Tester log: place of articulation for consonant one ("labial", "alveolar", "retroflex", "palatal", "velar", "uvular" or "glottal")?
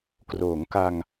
velar